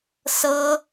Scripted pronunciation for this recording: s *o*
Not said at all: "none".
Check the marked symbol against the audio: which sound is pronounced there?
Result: ɤ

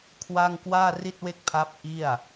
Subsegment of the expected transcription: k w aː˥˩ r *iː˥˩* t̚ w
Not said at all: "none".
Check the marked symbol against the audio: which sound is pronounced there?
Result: i˥˩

